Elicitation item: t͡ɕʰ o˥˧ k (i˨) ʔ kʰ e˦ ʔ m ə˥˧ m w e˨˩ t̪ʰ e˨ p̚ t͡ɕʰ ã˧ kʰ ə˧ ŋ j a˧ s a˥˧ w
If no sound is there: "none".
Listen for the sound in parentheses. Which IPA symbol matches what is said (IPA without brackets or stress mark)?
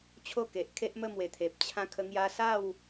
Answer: e˨